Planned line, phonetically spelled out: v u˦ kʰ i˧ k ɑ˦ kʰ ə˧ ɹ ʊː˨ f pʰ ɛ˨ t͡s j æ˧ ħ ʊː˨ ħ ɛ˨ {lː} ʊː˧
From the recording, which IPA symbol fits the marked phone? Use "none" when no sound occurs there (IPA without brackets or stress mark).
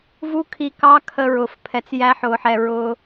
ɹ